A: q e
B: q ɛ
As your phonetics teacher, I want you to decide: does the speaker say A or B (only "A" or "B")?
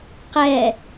B